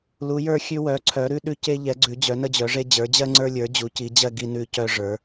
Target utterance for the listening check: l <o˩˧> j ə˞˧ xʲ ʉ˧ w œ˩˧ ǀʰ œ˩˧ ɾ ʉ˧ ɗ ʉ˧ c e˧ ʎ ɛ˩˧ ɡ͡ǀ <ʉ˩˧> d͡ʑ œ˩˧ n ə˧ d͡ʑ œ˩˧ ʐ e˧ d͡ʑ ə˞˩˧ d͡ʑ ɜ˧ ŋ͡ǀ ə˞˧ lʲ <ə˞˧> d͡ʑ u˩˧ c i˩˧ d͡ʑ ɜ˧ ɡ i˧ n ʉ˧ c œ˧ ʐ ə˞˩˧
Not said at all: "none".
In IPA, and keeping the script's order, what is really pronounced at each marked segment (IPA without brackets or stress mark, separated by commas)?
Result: u˩˧, ʉ˩˧, ə˞˩˧